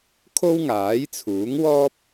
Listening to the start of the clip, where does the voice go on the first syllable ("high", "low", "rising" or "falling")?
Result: high